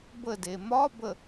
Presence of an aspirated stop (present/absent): absent